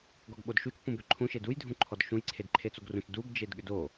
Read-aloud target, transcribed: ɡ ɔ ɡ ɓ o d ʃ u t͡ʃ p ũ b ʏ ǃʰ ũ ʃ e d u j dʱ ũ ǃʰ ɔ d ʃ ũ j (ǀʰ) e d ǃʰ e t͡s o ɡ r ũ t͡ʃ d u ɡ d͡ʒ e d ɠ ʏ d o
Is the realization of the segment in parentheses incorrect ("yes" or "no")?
no